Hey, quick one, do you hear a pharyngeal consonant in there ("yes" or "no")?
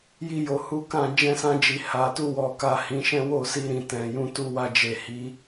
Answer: no